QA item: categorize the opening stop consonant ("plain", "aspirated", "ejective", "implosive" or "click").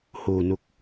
plain